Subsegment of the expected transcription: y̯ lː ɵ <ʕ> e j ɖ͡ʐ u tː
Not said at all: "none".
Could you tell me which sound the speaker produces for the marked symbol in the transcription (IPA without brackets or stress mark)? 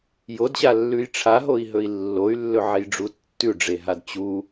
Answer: ʕ